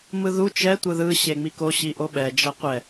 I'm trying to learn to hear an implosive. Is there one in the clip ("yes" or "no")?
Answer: yes